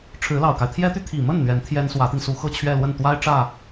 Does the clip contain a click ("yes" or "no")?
no